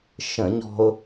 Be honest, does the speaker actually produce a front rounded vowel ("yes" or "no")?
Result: no